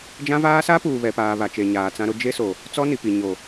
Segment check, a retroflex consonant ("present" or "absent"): absent